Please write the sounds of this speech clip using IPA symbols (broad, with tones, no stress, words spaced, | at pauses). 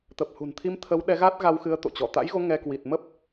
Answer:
t̪ə˨˩p̚hṳ˨˩n t̪ʰi˧m t̪ʰə˨˦wɗɛ˨˦ ɣa˦˥t̚ɣa˧wxɨ˨˦ə̯ t̪o̰˧˨t͡ɕɔ˧˩ t̪a̰˧˥jɣo˨˦ ŋɛ˧ kwi˨˩t̚mə˦˥p̚